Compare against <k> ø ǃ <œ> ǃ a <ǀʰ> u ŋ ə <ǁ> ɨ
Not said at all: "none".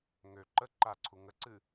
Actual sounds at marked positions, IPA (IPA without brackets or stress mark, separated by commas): ŋ, ə, ǀʰ, ǀ